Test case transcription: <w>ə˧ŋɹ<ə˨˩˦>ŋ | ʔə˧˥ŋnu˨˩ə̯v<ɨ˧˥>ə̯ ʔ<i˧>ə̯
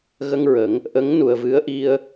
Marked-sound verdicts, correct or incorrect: incorrect: ɣ, correct, correct, correct

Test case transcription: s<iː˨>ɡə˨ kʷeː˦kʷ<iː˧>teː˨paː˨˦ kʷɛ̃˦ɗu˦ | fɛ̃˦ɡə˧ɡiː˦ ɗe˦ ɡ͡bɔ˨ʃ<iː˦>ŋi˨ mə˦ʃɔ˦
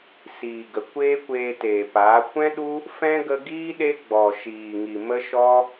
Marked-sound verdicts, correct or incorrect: correct, incorrect: eː˧, incorrect: iː˨

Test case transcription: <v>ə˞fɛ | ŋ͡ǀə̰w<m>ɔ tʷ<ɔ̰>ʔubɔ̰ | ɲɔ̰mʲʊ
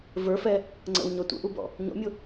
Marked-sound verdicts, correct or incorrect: correct, incorrect: ɲ, incorrect: ə̰

